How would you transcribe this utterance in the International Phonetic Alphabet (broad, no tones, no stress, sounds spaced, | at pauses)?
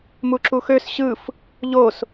m u ǁ u x ø s ɕ ɯ f | ʎ o s